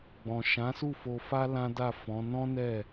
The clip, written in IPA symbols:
ɡ͡bɔ̃˨ʃã˨˦su˦˨ fo˧fa˦ lã˦da˦˨fɔ̃˨˦ nɔ̃˦ nɛ˦˨

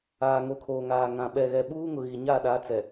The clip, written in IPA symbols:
aː˨ŋo˨kʰoː˨ŋaː˨ ŋã˨ ɓɛ˨ɣɛ˨ɓuː˦ ŋʊ˨ɣi˨ɲa˦˨ ɗa˨˦ t͡sɛ˨

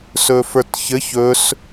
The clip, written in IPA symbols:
sɵfə˞tçɘç ɵs

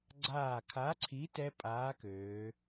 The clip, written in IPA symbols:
ɡ͡ǀaː˧˩kʰa˨˥ǀʰi˨˥ tɛ˦˥pʼaː˨˥køː˩˧

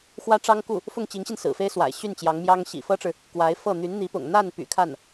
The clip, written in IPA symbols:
xwä˥ʈ͡ʂɑ˥ŋku˥˩ | fʊ˥˩ŋt͡ɕi˧˥ŋɕi˧n sɹ̩˨˩fe˥ɪ̯swa̰˨˩ɪ̯ ɕy˥˩n t͡ɕjɑ˧˥ŋmjɑ˥ŋ ɕḭ˨˩fɤ˥ʈ͡ʂɻ̩˨ | kwa˧˥ɪ̯fɤ˥˩ n̪y˧˥nn̪i˧˥pʊ̰˨˩ŋ n̪a˥˩n py̰˨˩kʰa˥˩n

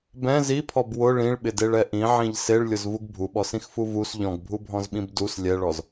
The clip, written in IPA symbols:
bɛ̃ zipʰɔb wʊ ɭĩɭɓɪdeɭɛ ʔĩʕĩʎ seɭlʲʊzvuɡ bʱuɓɔsĩxfu vus ʎɔ̃ɡbʱubʱɔ̃zɓĩb dus lʲɛɭɔz

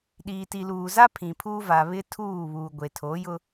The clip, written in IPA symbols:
ɗiː˨ti˨luː˨ za˦ pʰĩ˨pʰuː˦ va˨ βɪ˦tʰuː˦˨βuː˨ɡʷe˨ tʰo˨˦jʊ˦

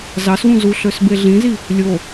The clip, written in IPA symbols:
zɑswũ zu ɬøsbeɮĩzi | lʲo

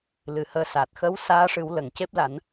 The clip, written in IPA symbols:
lɨ˨˩˦həː˧saː˨˩t̚ xə˧˥w saː˧˥ʂɨ˨˩˦wlə˨˩˨ŋ ce˦˥p̚la˨˩˦n

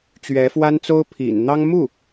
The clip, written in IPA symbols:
t͡ɕɥɛ˧˥fwa˥nt͡so˥ʊ̯ pʰḭ˨˩n n̪ɑ˥ŋ mu˥˩

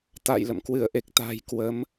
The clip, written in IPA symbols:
t̪a̰ː˧˨jlə̰˧˨mkwɨ˧˩ə̯ ʔe˨˩k̚t̪a̤˨˩j kwə˨˦m

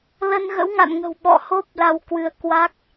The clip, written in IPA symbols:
lə˧nɣə̰˧˥wŋa̰˧˨nŋə̤˨˩w ɓɔ̰˧˨ho˦˥p̚ la˧wkwɨ˨˦ə̯ kwa˦˥k̚

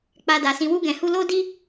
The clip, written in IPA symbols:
k͡pa˧da˨ sĩ˨wu˧ɡɛ̃˨hu˧ lo˦di˦

